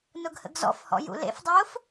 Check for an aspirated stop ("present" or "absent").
absent